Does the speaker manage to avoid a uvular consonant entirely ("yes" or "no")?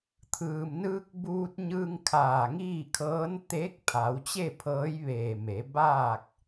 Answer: yes